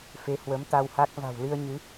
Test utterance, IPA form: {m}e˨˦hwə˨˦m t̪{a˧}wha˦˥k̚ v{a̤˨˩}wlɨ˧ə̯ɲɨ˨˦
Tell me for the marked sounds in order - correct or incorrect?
incorrect: f, correct, correct

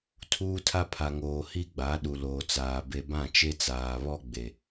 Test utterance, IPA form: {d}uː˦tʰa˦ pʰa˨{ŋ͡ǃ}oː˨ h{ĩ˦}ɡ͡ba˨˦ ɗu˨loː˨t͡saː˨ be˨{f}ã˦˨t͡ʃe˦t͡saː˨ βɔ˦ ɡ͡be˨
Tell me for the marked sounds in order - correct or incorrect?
incorrect: tʰ, incorrect: ŋ, incorrect: i˦, incorrect: b

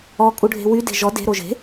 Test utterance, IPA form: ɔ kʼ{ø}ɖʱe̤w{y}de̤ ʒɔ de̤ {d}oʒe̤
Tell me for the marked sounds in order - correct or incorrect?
incorrect: u, correct, incorrect: ɾ

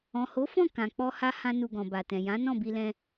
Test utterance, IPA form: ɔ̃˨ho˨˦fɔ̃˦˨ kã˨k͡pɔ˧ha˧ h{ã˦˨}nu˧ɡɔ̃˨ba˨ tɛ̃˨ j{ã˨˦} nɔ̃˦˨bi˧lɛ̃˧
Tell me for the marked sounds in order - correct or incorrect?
incorrect: ã˦, correct

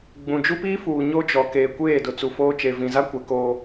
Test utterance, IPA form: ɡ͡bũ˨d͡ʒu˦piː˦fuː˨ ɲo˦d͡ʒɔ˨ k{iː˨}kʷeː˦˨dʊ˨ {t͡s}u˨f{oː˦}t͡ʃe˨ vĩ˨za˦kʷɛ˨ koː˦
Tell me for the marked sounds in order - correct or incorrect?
incorrect: eː˨, correct, correct

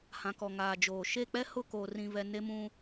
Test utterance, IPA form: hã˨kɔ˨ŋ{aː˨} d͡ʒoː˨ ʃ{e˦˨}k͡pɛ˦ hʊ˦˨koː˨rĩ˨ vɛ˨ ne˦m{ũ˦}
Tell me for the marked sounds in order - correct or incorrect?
correct, correct, correct

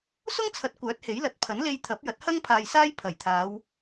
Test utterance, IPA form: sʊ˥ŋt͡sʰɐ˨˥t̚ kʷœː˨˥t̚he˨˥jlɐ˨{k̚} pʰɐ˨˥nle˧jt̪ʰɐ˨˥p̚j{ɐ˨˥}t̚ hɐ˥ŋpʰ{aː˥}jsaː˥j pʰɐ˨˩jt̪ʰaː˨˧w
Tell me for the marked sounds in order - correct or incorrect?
incorrect: t̚, correct, incorrect: aː˨

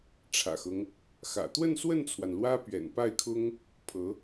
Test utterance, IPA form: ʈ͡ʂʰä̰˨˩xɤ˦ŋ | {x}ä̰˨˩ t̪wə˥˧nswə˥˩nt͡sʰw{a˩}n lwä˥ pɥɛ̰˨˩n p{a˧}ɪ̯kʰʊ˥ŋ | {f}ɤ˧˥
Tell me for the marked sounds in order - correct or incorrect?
correct, correct, incorrect: a˥˩, incorrect: pʰ

